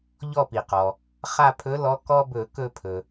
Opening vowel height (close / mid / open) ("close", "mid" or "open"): mid